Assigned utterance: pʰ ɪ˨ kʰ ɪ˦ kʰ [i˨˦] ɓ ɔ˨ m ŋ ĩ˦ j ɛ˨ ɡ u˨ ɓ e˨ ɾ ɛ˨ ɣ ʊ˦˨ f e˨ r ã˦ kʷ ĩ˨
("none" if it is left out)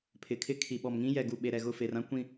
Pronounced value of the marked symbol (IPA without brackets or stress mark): i˨